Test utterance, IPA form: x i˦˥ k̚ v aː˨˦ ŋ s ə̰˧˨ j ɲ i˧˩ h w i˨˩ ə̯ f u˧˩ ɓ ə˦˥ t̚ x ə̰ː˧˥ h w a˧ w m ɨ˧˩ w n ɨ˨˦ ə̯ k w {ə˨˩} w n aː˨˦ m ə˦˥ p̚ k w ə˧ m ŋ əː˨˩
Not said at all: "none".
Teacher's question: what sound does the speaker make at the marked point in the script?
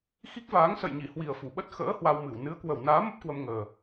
ə˨˩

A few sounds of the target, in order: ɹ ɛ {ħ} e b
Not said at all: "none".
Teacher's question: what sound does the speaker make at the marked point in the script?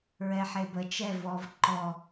ħ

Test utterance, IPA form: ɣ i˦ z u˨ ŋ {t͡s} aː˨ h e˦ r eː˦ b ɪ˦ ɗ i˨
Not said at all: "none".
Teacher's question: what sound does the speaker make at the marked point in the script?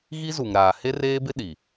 ɾ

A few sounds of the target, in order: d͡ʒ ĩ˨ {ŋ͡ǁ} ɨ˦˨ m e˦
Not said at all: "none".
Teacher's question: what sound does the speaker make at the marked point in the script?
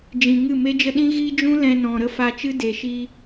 ŋ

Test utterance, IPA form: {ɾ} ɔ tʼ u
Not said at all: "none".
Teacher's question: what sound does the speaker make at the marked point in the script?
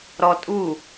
ɾ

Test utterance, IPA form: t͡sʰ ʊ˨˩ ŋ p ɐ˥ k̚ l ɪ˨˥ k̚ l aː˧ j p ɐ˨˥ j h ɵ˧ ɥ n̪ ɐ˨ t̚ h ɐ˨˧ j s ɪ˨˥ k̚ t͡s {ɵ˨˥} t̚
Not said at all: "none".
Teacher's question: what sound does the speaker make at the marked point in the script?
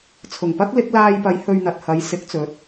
ɵ˨˥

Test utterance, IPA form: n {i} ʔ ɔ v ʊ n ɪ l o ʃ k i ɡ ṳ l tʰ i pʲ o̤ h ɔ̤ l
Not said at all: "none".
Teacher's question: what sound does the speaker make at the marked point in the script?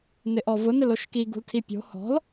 ɪ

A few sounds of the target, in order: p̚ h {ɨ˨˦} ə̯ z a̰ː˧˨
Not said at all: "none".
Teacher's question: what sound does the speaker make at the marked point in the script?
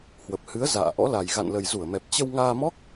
ɨ˨˦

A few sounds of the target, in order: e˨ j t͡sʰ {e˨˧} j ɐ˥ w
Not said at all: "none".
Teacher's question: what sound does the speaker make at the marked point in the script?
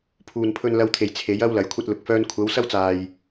e˨˥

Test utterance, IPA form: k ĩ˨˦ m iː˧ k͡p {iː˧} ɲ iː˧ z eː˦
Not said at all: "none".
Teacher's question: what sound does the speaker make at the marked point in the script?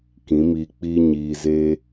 iː˦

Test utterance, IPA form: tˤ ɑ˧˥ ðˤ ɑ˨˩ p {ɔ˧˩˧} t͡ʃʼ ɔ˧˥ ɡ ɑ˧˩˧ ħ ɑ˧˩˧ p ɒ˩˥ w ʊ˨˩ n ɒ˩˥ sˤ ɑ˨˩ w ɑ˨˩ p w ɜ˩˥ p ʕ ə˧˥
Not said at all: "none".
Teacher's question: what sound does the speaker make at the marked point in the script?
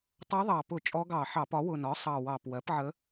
ʊ˧˩˧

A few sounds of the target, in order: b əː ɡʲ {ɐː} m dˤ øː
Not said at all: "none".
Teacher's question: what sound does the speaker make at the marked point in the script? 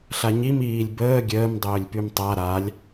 əː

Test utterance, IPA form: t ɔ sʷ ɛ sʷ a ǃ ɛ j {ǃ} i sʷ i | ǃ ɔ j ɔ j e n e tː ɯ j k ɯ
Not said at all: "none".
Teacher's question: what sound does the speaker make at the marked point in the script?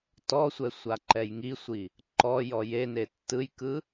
ŋ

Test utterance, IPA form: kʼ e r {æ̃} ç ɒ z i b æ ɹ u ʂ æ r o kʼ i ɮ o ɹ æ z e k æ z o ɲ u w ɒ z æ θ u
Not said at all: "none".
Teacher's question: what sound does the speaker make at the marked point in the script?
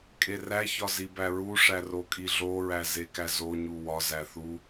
æ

